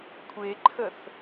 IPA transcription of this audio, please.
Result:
kʷʰeǃʰəθ

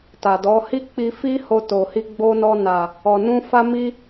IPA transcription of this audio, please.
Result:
ta˨dɔ˨˦ hi˦k͡pi˧fi˦ ho˧to˨hi˧ ɡ͡bo˧nɔ˧na˨ | ɔ˨nũ˧ fa˦mi˦

